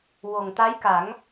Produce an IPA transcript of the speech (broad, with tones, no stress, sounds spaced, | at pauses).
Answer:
w o˨˩ ŋ t̪ a˧˥ j k a˨˩˦ ŋ